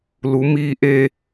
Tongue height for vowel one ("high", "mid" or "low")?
high